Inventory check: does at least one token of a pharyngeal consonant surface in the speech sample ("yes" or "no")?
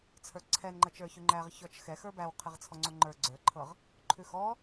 no